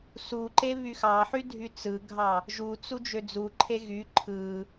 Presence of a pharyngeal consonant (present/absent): present